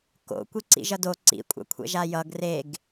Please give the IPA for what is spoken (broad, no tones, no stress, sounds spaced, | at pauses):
k o̰ kʷ i ǀ ḭ ʒ ʌ d o ǀ ḭ kʷʼ a̰ kʷʰ ɛ̰ ʒ a j ʌ ɡ r e ɡ